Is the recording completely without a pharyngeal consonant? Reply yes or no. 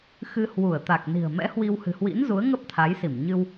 yes